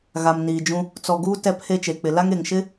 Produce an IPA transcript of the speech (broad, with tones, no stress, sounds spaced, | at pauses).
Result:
ɣ a˨ m n iː˨ d͡ʒ ũ˦ | t͡s ɔ˨ ɡ uː˦ t ɛ˦ pʰ e˦ t͡ʃ e˨ k͡p ɪ˨ l a˦ ŋ e˨ ŋ ʃ ɪ˦